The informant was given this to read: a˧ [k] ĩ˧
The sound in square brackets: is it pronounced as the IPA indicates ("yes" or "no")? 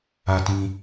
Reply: no